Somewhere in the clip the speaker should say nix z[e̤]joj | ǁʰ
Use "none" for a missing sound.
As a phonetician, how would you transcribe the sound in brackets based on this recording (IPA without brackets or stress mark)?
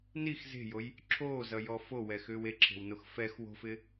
e̤